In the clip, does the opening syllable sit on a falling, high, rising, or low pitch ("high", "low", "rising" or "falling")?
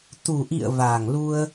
low